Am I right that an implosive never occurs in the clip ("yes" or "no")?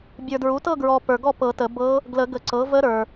yes